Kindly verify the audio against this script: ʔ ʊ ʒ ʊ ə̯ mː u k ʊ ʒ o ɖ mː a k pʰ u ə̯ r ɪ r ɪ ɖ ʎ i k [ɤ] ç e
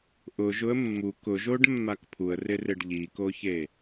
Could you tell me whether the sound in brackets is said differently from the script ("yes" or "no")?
yes